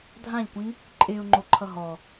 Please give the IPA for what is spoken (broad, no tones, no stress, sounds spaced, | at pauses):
dʱ ã ʎ kʷ ĩ | ǃʼ e ʊ̯ ŋ͡ǃ o ǃʰ ʌ ɦ ɔ